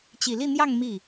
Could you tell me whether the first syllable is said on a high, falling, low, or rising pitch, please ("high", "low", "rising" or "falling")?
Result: low